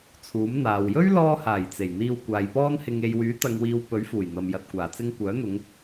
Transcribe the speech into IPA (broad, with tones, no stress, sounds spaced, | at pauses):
t͡sʰ uː˨˥ m n̪ aː˨ w j ɵ˥ ɥ l ɔː˧ h aː˨˩ j t͡s e˨˩ j n̪ iː˧ w kʷ aː˨˧ j p ɔː˥ n h ɪ˧ ŋ e˨ j w yː˨˥ t̪ ɐ˨ ŋ w iː˨ w p ɵ˨˥ ɥ f uː˨˩ j n̪ ɐ˨ m j ɐ˨ t̚ kʷ aː˨˩ t͡s ɪ˧ ŋ kʷ œː˨˥ n̪ ʊ˨˧ ŋ